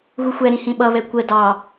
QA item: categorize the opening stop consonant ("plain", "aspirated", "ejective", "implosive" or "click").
implosive